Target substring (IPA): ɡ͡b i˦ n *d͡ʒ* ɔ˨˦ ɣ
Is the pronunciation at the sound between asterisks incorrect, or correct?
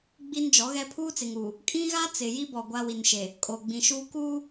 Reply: correct